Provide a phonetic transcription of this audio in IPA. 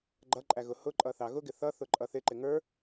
ɡ͡ǃ ʌ ǃʼ æ ɣ ʊ h ʊ ǃʼ ʌ θ ɑ ɣ ʊ ɡ ɪ θ ʌ θ ʊ ǃʼ ʌ θ ɪ ǃ ɪ ŋ ə˞

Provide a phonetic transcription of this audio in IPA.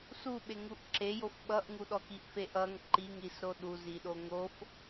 s u ɓ e ŋ u ʔ ǁ e j o f ɓ ʌ ʔ ŋ u ɗ ɔ k i ʔ f e ʔ ʌ ŋ ǃ i ŋ ɾ i s ɾ o ɗ u z i ɗ o ŋ o f

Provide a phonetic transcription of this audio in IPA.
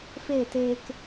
f e˦˨ t eː˧ k

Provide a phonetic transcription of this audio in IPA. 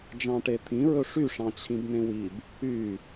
d͡ʒ ɑ̃ ʈ e t̪ʰ ĩ ɹ ɵ ʂ y ʂ ɑ̃ t͡ɕʰ ĩ b n ẽ w i b | y

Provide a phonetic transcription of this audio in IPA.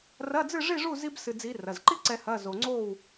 r ɐ˧˥˧ d͡z ɨ˥˨ ʐ i˥˨ ʐ u˥˨ z i˥ b s ɨ˧ d͡z i˧˥ r ɐ˩˧˩ z ǃ i˥ ǀ ɛ˧ h ɐ˧˥˧ z o˧ ŋ͡ǀ o˥˨ w

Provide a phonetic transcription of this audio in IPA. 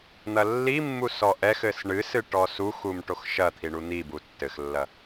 n̪ ɐ lː i mː u s ɔ ʔ ɛ x ɘ s ɳ ɨ s ɨ ʈ ɔ s u x u m ʈ o x ʃ ɐ t̪ʰ i ɳ u n̪ i b u tː ɘ x lː ɐ

